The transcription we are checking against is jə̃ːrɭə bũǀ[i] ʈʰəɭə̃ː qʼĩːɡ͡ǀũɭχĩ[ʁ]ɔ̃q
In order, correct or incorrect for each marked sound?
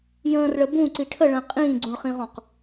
correct, correct

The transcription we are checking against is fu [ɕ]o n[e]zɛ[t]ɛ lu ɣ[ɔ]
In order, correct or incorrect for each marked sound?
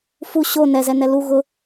correct, incorrect, incorrect, incorrect

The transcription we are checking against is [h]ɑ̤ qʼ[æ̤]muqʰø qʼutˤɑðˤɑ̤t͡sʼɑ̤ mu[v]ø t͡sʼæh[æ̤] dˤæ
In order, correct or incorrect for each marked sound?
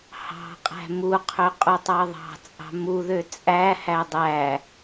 correct, correct, incorrect, incorrect

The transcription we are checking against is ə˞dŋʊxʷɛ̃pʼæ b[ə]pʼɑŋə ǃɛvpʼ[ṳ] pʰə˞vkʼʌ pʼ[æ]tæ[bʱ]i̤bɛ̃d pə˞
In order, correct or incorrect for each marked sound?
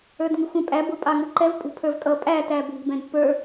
incorrect, correct, correct, correct

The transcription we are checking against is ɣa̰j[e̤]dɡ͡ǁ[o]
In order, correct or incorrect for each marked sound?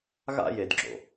incorrect, incorrect

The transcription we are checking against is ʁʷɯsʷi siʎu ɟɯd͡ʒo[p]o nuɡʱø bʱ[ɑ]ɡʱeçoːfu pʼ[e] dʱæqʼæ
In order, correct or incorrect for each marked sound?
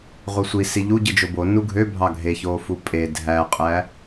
incorrect, correct, correct

